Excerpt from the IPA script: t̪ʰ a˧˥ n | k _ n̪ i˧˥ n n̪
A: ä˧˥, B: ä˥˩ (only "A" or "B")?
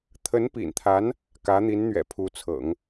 A